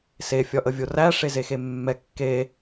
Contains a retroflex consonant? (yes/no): yes